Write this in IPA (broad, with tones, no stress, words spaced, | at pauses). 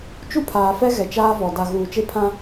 t͡ʃu˦pʰaː˨fɛ˦ ɣɛ˨t͡ʃaː˦vɔ˨ da˨ɣuː˨ t͡ʃe˦pʰã˦